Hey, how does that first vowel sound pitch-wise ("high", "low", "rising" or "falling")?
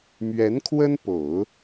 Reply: rising